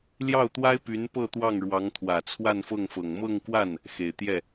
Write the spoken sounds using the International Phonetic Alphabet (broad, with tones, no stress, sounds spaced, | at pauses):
l j ɑ˥˩ ʊ̯ t̪ w a˥ ɪ̯ p y˧˥ n p ɤ˥˧ t̪ w ɑ˥˩ ŋ ɻ w ɑ˧˥ ŋ t̪ʰ w ä˨˩ t͡sʰ w a˥˧ n f ɤ˥˩ ŋ f ɤ˨˩ ŋ m ɤ˥˧ ŋ k w a˥˩ n | x e˨˩ ɪ̯ t̪ j ɛ˥˩